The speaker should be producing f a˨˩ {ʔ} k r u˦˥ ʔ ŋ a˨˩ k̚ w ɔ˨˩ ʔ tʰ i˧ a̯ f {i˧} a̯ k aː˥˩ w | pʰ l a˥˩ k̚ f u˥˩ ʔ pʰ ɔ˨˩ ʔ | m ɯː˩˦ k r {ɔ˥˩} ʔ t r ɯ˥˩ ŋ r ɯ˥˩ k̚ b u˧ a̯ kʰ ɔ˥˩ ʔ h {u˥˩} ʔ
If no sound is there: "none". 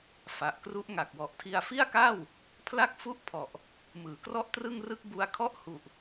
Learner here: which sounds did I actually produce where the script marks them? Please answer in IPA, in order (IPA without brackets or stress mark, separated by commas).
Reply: ʔ, i˥˩, ɔ˥˩, u˨˩